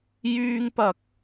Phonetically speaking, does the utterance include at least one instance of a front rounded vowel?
yes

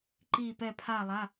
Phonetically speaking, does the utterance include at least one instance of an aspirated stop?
yes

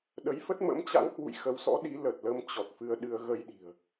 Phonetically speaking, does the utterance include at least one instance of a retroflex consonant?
no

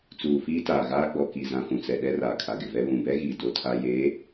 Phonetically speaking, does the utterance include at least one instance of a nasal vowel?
yes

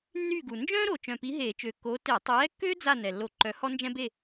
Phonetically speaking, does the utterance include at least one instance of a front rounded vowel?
yes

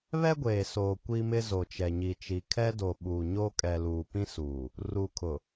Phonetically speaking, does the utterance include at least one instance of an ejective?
yes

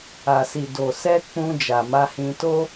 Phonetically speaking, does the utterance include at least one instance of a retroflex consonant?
no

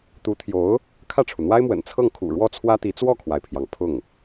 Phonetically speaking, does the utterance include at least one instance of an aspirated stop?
yes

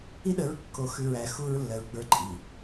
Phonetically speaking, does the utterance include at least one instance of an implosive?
yes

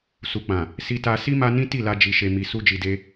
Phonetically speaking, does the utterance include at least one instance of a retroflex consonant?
no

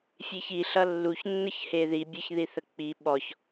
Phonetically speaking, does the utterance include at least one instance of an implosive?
yes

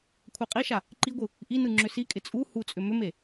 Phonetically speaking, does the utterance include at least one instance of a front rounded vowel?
yes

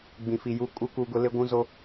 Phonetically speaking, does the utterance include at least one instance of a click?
no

